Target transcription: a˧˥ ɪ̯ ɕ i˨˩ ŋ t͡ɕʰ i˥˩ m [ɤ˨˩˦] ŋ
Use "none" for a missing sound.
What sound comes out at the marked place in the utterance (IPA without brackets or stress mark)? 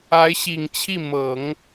ɤ˨˩˦